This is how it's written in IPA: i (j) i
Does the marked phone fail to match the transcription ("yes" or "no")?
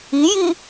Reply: no